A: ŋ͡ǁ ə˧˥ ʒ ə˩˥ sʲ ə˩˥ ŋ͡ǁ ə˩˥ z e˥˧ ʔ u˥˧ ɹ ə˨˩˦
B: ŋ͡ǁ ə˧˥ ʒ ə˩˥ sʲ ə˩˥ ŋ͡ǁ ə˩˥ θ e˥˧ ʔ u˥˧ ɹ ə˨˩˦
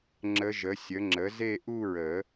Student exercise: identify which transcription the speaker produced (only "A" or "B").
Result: A